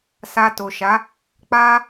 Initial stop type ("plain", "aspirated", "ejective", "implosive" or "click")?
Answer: plain